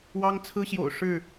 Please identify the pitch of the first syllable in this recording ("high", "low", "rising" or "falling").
high